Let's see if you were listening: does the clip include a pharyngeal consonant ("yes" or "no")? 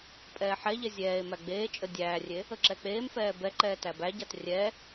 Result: yes